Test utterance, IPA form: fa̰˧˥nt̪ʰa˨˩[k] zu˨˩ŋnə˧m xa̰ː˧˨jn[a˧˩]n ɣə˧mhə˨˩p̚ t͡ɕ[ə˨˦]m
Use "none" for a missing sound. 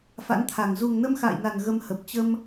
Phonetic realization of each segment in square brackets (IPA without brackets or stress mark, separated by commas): ŋ, a˨˩, ə˧